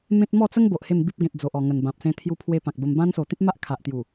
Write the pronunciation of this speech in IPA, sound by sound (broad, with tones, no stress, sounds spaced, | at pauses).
m ẽ˦ t̚ m ɔ˥˧ t͡s ə˦ ŋ b o˨ ʔ h e˥˧ m b i˦ p̚ ɡ ẽ˨ t̚ d͡z o˨ ʔ ɔ˨˩ ŋ ə˨˩ n b ã˨ p̚ s ẽ˧ t̪ʰ j u˧ pʰ w e˧ p ã˨ k̚ b ə˧ m b ã˧ n s o˨˩ t̪ ĩ˦ p̚ m a˦ ʔ kʰ a˨ ʔ t̪ j u˨˩